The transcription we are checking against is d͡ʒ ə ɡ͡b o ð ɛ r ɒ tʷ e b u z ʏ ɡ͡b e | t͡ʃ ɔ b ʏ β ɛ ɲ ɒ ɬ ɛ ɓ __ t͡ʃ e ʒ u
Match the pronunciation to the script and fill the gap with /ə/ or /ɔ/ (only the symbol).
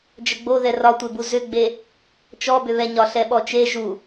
ɔ